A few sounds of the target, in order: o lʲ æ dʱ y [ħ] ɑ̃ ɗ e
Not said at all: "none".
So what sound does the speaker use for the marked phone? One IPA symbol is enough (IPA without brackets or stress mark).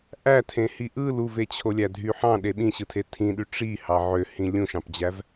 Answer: ħ